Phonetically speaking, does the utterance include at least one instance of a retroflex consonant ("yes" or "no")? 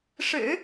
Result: yes